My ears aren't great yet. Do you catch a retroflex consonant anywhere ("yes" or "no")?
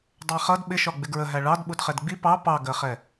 yes